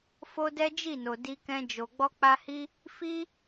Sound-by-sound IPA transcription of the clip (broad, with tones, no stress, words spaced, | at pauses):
fo˦dɛ˦d͡ʒi˦˨no˨ di˧kɛ̃˧ d͡ʒo˨ɡ͡bɔ˧k͡pa˧hi˦ | fi˦